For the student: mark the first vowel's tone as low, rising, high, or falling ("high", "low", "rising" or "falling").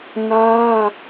high